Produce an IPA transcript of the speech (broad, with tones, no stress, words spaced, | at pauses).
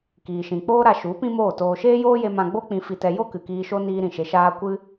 kiː˨ʃĩ˨k͡poː˦ɾa˧ ʃu˨˦ pĩ˦moː˦˨toː˧ ʃeː˦joː˦je˧ mã˧ɡ͡bo˦ k͡pĩ˧fi˧tɛ˧ jo˦ kɨ˨kiː˧ʃo˦ niː˦ɾĩ˧ʃe˧ʃaː˦ kʷɨ˦